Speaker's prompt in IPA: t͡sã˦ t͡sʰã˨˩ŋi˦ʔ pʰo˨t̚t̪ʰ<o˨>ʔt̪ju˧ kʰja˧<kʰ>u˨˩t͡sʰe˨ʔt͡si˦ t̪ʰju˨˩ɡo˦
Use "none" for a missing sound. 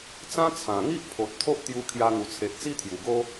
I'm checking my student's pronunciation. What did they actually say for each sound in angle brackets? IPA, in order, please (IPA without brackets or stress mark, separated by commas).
o˦, ŋ